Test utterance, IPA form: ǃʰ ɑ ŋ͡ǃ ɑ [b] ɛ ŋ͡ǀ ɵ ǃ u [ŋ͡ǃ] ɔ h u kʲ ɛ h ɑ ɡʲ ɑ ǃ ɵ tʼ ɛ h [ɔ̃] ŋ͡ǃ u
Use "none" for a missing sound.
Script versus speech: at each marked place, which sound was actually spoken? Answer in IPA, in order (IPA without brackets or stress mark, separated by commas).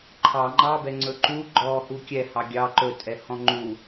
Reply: b, ɡ͡ǃ, ɔ̃